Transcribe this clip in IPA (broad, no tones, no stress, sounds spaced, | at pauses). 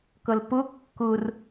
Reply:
k ʌ l p ʊ kː ʊ r